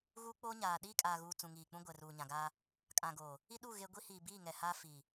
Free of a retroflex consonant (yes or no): yes